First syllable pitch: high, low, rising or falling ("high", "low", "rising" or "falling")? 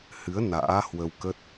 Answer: rising